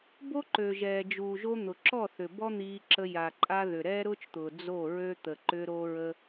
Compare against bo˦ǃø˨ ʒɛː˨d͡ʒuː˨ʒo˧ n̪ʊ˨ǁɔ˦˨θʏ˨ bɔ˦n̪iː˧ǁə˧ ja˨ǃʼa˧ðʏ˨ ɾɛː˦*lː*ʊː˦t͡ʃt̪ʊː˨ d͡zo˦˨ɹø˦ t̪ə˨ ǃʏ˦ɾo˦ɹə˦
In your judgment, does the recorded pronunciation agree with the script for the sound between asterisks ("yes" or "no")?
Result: no